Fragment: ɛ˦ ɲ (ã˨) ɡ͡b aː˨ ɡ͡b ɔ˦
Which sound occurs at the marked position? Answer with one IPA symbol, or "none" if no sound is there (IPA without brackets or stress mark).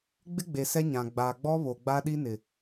ã˨